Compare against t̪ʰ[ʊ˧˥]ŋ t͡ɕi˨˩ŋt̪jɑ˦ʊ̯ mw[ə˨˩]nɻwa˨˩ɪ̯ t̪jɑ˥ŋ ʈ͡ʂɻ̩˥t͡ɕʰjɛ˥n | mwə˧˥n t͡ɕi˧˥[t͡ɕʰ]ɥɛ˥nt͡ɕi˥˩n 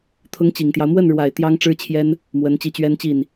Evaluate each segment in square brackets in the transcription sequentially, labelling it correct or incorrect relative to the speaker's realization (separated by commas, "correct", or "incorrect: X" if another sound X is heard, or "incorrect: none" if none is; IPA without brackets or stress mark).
correct, incorrect: ə˥˩, incorrect: t͡ɕ